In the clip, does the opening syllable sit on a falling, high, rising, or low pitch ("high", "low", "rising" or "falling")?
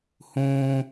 high